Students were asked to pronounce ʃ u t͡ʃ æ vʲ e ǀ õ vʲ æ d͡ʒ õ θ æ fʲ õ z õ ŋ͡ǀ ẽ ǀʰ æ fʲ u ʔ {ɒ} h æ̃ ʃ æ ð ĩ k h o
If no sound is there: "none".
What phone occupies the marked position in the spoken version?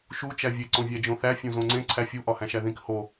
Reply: ɒ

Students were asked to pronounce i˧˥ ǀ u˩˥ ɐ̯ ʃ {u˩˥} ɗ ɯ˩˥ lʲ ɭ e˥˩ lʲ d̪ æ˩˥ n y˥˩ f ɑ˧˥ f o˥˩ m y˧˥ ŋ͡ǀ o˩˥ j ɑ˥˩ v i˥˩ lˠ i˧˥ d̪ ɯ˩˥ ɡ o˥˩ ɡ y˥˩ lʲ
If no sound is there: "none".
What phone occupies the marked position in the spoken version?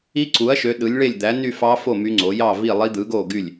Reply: ø˩˥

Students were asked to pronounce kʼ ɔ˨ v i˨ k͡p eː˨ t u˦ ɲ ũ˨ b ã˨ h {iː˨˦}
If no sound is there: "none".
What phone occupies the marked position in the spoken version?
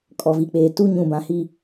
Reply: iː˦˨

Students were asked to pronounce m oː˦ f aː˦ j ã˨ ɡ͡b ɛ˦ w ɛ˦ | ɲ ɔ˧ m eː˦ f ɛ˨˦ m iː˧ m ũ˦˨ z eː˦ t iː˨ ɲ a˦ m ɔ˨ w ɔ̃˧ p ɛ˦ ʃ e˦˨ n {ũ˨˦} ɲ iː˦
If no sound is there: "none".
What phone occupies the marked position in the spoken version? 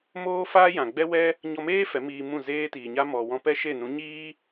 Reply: ũ˨˦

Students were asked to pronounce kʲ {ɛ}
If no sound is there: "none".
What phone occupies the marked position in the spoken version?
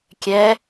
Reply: ɛ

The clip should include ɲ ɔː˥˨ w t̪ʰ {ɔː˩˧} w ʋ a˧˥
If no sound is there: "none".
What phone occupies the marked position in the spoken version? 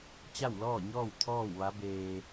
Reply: ɔː˥˨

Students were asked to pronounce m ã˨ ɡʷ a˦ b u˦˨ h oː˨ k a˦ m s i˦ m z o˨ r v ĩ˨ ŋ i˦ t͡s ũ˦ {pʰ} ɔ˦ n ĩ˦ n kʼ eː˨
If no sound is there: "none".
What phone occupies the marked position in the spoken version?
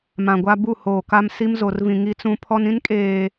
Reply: pʰ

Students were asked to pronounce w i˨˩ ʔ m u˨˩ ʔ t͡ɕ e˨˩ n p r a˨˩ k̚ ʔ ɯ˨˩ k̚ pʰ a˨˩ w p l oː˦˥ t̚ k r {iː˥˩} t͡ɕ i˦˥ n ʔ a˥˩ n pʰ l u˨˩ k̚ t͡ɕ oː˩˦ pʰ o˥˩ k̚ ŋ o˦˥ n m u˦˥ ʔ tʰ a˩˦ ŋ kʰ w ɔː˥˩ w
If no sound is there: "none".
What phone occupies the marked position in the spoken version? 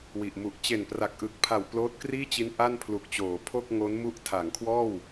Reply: iː˥˩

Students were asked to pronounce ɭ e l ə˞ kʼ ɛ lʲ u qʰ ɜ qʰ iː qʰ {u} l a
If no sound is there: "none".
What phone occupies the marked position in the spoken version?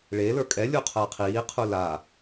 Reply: u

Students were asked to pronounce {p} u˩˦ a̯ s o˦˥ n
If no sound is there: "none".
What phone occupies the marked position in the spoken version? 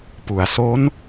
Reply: p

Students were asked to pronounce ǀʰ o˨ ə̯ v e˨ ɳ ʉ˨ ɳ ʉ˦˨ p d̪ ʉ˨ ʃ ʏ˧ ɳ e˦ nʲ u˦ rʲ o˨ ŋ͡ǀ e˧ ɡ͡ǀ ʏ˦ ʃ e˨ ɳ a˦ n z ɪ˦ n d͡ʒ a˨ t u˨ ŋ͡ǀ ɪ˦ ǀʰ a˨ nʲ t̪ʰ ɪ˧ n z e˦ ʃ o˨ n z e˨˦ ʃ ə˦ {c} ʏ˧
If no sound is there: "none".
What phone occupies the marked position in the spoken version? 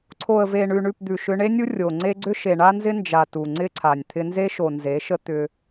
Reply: t̪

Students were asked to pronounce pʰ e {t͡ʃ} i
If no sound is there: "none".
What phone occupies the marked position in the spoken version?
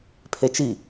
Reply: t͡ʃ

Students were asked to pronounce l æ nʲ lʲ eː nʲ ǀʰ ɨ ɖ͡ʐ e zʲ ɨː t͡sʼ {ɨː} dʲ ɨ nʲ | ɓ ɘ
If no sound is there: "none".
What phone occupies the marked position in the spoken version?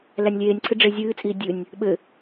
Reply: iː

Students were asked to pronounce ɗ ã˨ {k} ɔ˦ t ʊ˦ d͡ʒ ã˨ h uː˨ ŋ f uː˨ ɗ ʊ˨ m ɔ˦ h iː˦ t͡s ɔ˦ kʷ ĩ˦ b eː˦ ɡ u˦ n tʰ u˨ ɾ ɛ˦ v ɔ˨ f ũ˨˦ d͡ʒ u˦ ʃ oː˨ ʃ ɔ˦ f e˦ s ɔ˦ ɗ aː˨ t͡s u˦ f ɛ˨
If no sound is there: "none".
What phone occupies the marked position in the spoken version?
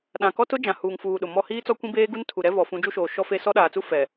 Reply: k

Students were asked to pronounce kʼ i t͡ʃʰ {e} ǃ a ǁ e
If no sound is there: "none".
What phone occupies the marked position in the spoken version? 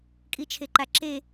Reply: e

